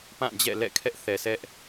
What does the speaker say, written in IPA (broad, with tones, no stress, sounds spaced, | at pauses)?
p ã˦˨ d͡ʑ ɛ̰˦˨ l ɛ̰˦˨ kʰ ɛ˦ ʔ θ ɛ˨ sʰ ɛ˦ ʔ